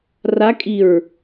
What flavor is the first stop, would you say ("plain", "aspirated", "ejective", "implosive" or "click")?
ejective